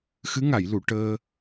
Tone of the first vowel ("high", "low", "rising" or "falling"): rising